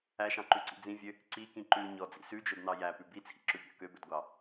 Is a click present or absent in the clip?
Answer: present